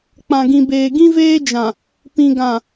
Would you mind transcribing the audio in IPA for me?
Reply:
k͡p ã˨ ɡ ĩ˨ b eː˨ ɡ ĩ˦ v eː˦ d͡ʒ ã˨ | p ĩ˨ ɡ ã˨

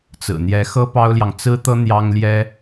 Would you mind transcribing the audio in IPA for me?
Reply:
t͡s ɹ̩˨˩ n̪ j ɛ˧˥ x ɤ˥ p ɑ˥ ʊ̯ l j ɑ˨ ŋ t͡s ɹ̩˥ t̪ ɤ˥ n̪ j ɑ˥ ŋ l j ɛ˥

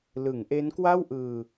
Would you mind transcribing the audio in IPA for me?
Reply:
l ɯ˩˦ ŋ ʔ e˦˥ n k w a˥˩ w ʔ ɯː˧

